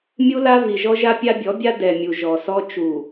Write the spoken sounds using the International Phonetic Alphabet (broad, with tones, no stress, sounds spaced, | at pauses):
mʲ u˦ l a˦ v i˨ ʒ ɔ˦ ʒ a˦ pʲ a˦ bʲ ɔ˨˦ bʲ a˦ d ɛ˨ mʲ u˨ ʒ ɔ˨ s ɔ˦ t͡ʃ u˨